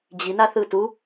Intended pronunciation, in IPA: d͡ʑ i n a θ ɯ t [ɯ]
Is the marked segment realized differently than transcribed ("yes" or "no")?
yes